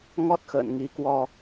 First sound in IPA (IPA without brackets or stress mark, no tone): ŋ